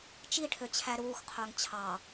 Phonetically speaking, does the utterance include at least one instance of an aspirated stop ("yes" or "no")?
yes